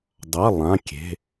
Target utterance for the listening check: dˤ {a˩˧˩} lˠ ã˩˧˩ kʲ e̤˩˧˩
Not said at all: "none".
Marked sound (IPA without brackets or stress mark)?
a˩˧˩